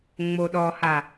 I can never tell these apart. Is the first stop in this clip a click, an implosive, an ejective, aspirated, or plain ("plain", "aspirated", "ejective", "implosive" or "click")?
implosive